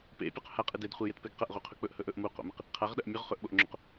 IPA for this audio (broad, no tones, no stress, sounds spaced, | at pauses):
p ḛ pʲ o q h a qʼ ɨ d e d χʷ i j e t p e ɡ q ɐ ʔ ʁ u qʰ ɵ k͡p ɵ ʔ h ɵ ʔ ɵ ʔ m u q o̰ m ɨ q | qʰ a ʁ ɗ ɐ ʔ mʲ ɵ ʁ χ ɵ ʔ ɓ o ʔ ŋ͡ǁ o̰ q